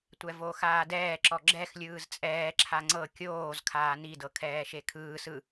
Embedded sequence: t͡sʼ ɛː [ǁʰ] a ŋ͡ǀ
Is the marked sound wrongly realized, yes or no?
no